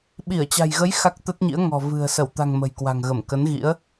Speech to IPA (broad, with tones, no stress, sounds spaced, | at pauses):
ɓ i˧˩ ə̯ t͡ɕ a̤˨˩ j ɣ ə˨˦ j x a˦˥ k̚ t̪ ə˦˥ t̚ ɲ ḭ˧˥ ə̯ ŋ ɔ̤˨˩ v ɨ̤˨˩ ə̯ s ə˧˩ w t̪ a̤˨˩ ŋ m ə̤˨˩ j k w a̤˨˩ ŋ ɣ ə˧˩ m k ə˨˦ n ɣ ḭ˧˥ ə̯